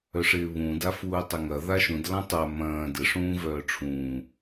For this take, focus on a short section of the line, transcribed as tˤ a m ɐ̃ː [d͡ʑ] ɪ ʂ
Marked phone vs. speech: incorrect: d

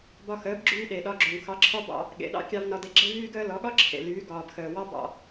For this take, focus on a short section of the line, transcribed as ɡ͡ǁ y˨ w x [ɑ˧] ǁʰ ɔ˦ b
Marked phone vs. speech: correct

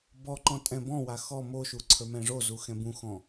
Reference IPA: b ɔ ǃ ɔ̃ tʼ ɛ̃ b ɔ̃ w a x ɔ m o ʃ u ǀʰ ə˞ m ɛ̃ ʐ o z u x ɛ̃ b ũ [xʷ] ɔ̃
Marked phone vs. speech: incorrect: x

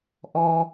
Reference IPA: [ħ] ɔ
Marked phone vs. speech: incorrect: ʔ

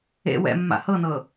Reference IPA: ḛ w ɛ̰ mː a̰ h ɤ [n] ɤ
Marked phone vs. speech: correct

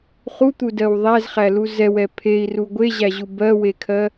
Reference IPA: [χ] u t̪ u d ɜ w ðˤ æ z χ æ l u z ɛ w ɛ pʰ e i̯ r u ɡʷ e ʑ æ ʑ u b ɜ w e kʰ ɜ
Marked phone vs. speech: correct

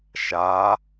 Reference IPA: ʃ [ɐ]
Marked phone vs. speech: incorrect: a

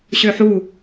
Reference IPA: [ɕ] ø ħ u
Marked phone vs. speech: correct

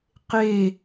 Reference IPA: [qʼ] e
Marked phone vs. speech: incorrect: q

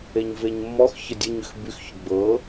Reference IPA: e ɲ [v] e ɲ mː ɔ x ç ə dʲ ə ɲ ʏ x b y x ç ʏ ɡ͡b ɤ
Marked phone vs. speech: correct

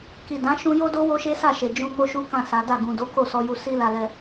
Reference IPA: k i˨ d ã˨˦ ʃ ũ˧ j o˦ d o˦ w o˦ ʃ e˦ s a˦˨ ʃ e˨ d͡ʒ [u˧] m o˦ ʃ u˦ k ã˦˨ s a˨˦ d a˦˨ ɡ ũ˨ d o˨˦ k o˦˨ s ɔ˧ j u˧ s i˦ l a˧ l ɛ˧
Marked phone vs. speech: incorrect: ũ˧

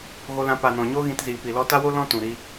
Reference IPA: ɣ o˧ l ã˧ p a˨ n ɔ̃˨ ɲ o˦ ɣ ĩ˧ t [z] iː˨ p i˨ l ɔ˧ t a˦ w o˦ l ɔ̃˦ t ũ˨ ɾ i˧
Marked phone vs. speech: correct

